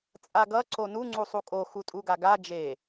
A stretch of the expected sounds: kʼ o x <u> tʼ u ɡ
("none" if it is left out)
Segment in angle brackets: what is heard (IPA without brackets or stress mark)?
u